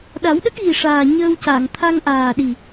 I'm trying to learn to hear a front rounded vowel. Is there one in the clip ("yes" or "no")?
no